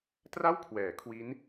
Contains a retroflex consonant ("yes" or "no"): no